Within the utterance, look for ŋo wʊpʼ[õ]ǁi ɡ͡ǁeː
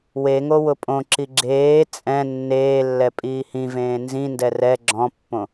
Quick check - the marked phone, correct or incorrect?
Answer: correct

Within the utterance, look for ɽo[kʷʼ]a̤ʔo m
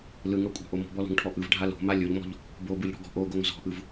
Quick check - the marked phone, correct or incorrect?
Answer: correct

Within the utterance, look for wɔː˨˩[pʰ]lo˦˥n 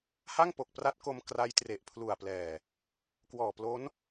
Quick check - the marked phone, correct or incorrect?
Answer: incorrect: p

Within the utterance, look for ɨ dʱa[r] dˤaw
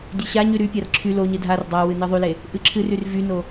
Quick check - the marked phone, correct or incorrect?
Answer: correct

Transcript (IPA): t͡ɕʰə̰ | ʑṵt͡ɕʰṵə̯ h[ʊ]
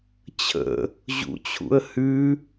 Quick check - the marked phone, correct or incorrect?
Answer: incorrect: ʉ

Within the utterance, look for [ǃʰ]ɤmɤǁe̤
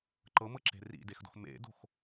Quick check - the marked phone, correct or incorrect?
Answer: incorrect: ǃ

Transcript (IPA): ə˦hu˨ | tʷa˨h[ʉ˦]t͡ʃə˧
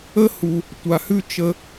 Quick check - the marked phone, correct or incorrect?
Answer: correct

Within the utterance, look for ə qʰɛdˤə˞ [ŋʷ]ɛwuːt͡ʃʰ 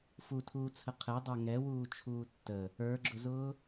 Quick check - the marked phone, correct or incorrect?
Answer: incorrect: ŋ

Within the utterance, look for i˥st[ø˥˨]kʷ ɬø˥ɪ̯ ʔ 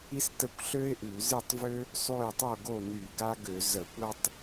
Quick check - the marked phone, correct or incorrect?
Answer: incorrect: ə˥˨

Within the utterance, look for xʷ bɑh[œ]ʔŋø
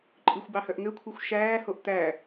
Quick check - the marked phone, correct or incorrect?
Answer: correct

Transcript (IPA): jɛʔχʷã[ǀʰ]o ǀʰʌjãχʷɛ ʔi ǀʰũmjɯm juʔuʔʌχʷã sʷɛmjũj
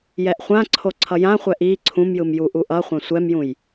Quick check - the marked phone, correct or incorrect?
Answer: correct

